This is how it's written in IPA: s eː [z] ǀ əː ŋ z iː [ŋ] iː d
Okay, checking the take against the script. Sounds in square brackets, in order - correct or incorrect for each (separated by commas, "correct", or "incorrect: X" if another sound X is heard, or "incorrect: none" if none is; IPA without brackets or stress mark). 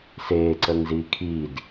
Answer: incorrect: none, incorrect: kʰ